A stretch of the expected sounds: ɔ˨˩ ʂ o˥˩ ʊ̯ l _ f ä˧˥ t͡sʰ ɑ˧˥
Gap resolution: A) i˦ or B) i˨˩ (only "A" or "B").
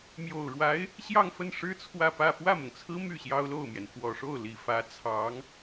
B